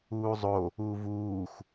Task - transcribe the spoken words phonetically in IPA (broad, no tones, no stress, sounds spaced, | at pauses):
uː zˤ o | uː v uː xʷ